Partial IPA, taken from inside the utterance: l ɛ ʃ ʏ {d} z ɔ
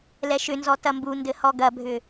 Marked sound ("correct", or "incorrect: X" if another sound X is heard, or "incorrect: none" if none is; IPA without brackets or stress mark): incorrect: n